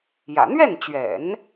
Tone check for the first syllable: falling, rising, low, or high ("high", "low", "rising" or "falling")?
low